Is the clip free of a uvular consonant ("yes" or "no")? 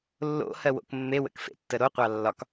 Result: no